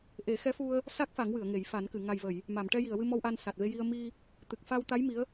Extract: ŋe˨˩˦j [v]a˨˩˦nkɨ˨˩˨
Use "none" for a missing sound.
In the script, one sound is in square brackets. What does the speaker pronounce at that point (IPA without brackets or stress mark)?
f